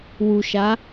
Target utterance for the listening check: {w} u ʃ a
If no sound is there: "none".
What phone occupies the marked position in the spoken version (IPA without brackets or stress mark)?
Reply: w